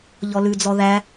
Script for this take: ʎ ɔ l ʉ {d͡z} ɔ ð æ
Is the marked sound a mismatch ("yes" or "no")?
no